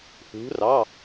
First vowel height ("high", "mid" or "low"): high